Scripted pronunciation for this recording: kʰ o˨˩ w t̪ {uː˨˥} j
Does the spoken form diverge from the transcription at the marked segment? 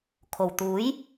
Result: no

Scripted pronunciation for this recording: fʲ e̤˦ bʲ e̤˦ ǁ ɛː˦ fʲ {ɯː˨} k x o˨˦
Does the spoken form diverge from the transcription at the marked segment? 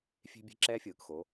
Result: no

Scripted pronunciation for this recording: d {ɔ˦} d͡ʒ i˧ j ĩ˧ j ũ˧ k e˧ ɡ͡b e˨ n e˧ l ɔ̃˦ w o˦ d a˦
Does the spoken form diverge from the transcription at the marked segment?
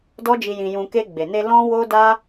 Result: no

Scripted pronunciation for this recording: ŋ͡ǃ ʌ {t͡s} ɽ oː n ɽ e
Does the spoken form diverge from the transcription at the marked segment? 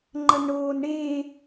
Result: yes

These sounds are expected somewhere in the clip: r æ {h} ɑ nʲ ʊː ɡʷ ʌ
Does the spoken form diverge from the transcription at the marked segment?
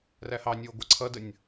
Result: no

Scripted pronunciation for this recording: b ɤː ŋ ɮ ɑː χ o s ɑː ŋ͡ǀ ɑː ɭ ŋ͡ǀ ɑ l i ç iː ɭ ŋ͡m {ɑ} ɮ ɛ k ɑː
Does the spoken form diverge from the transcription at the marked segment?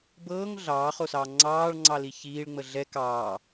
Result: yes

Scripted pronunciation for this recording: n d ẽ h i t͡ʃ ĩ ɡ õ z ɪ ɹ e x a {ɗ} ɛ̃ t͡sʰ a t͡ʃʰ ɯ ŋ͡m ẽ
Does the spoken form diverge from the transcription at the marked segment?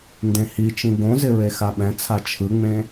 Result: yes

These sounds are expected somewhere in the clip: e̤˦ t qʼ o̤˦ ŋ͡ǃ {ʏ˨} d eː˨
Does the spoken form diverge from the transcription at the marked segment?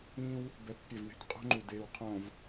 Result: yes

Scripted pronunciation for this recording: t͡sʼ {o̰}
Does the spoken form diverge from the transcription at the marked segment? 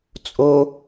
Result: yes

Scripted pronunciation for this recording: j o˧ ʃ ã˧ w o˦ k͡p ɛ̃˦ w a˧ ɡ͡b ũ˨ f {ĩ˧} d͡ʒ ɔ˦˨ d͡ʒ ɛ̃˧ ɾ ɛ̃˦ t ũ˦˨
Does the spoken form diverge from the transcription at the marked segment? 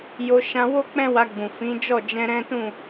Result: yes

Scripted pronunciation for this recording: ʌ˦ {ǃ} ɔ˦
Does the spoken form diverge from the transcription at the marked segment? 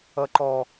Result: no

